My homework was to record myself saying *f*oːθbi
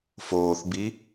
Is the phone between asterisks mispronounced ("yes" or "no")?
no